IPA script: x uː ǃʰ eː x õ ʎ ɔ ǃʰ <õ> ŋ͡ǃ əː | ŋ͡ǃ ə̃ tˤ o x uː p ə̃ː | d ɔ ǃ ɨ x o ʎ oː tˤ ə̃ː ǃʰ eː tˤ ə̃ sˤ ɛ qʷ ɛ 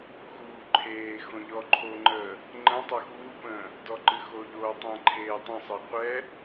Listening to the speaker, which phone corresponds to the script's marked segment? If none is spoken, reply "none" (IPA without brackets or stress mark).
o